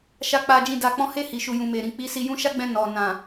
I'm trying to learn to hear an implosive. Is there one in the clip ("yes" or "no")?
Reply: no